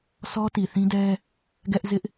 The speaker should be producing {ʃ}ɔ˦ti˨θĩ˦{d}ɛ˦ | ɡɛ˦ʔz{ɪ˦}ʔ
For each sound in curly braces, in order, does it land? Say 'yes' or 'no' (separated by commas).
no, yes, yes